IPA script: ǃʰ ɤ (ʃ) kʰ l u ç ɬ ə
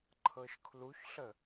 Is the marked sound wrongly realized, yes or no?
no